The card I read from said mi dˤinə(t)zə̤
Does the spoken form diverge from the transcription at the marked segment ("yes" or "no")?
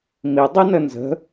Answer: yes